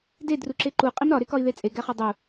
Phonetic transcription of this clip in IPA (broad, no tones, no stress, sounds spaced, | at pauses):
d e d r u ǁ e ǃ u qʼ i m ɾ ɒ ɾ e k ɒ i̯ ð e t͡sʼ e ɡ æ χ ɒ dˤ u